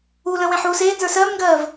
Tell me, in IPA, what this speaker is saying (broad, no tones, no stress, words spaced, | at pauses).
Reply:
ulə̃ wẽħuːseː nzə˞sɜːmŋɡɜːv